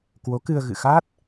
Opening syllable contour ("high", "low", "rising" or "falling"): rising